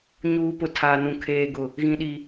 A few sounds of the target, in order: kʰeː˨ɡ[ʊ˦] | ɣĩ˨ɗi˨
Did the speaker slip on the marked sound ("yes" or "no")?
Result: yes